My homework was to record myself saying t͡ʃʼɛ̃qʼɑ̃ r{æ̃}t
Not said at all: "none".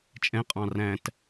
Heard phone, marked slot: æ̃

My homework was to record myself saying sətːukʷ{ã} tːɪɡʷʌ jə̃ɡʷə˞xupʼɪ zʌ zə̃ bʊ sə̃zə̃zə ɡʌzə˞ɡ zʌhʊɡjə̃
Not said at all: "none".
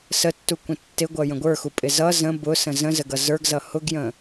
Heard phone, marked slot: ə̃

